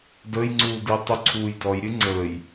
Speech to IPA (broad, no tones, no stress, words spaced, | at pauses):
dəjŋ͡ǀuːdɨj tˤuǀʰuːjdɔj ɾʲɨŋ͡ǀəːj